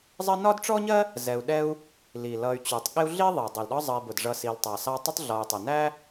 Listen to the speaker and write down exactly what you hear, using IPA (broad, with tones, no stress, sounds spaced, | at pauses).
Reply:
zˤ ɜ˦ n ɒ˥ d ʈ͡ʂ ɔ˥ ɲ ɜ˥ | z ɛ˨ u̯ ɗ ɛ˦ u̯ | l i˩ l ʌ˨ y̯ t͡ɕ u˩ tˤ ɠ ɪ˦ u̯ ɮ i˥ ðˤ i˩ dˤ i˩ l ɗ ɒ˦ zˤ ʌ˨ i̯ b ʊ˩ d ʐ ʌ˨ s i˨ l tˤ ɑ˩ s ɑ˦ tˤ ɪ˥ tˤ ɮ ɒ˨ y̯ tˤ ɪ˩ n æ˥